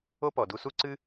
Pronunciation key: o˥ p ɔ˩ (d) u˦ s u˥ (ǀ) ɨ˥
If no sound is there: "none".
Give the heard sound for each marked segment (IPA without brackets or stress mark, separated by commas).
d, ǀ